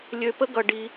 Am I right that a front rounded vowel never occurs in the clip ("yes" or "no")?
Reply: no